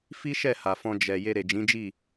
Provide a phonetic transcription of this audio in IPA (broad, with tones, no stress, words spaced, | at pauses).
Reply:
fi˦ ʃɛ˦˨ ha˨fɔ̃˧ d͡ʒɛ˨ je˧ɾe˨d͡ʒĩ˨˦d͡ʒi˦˨